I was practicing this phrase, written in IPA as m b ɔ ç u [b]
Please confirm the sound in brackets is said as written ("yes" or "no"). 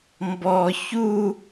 no